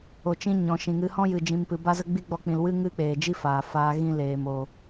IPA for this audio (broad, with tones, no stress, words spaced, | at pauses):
o˨t͡ʃĩ˧ ɲɔ̃˨ʃĩ˨ŋɨ˧ hɔ̃˦jɨ˨d͡ʒĩ˨mpɨ˨ ba˦zə˦ ɡ͡bi˦ɡ͡bɔ˧k͡pĩ˨l wɨ˦ ŋɨ˦k͡peː˨d͡ʒi˦ faː˨faː˧ ɣĩ˦leː˨mo˨